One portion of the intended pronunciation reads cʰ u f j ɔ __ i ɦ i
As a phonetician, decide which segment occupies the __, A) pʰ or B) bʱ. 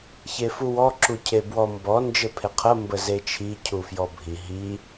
B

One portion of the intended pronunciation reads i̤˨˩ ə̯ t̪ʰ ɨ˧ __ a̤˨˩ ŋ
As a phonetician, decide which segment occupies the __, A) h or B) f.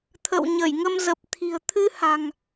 A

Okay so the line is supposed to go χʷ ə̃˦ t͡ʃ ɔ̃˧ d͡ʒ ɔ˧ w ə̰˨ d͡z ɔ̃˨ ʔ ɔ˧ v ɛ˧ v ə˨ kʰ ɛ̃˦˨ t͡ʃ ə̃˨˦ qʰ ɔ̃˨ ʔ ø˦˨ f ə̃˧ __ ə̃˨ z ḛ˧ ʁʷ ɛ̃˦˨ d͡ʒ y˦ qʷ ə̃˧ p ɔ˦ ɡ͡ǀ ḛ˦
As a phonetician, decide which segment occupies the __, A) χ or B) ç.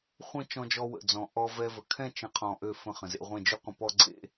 A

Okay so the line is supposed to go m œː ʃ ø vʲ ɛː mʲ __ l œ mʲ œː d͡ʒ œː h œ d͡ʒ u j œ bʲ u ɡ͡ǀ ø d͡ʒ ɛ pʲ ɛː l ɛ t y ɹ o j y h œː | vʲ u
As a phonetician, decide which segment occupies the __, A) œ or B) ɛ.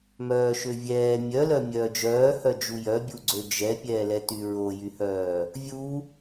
A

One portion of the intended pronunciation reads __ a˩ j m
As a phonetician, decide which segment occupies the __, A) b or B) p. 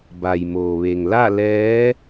A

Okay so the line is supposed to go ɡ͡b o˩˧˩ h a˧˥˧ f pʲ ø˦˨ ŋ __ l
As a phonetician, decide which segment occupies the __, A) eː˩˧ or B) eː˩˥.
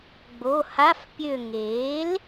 B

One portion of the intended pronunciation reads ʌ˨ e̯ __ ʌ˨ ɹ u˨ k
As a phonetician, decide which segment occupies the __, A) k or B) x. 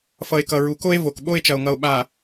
A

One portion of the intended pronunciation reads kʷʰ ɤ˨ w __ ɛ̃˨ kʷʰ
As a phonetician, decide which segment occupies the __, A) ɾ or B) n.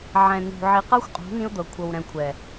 A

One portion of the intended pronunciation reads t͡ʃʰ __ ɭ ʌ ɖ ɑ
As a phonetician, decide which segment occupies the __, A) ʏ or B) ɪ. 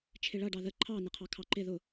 B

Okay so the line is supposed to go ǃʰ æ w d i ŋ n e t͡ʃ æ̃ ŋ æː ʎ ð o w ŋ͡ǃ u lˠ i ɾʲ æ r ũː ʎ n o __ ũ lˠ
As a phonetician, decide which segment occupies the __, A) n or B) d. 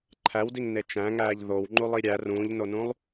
A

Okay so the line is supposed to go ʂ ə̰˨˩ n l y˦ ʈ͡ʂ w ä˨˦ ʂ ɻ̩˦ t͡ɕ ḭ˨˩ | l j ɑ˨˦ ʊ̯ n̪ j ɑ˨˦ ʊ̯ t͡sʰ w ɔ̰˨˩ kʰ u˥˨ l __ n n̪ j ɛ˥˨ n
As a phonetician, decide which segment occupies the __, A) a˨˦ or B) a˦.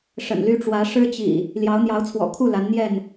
A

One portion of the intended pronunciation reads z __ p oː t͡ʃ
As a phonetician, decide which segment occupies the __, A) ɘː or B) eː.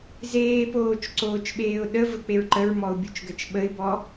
B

